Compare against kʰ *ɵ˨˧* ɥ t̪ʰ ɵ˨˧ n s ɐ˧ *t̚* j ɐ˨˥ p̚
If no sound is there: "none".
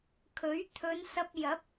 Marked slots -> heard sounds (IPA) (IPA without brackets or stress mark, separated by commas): ɵ˨˥, p̚